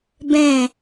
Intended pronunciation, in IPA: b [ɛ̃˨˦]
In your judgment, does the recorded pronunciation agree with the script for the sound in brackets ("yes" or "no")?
no